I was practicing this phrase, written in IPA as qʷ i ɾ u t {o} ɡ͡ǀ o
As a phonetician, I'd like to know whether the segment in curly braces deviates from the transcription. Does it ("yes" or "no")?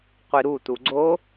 yes